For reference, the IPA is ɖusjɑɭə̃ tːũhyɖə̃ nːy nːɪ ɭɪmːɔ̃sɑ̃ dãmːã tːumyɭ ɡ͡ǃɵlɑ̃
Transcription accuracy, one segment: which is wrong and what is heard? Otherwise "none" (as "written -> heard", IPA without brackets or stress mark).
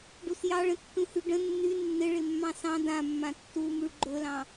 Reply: ɔ̃ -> ɑ̃